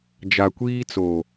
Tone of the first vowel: low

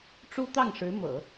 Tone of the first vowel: high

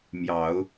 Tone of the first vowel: low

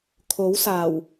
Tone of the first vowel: rising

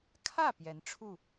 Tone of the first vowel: falling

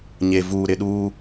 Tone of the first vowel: low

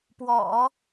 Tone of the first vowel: low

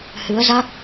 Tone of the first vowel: rising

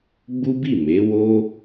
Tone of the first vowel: high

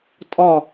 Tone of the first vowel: falling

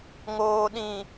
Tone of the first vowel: low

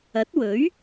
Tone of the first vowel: rising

